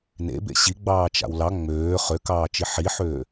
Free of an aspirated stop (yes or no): yes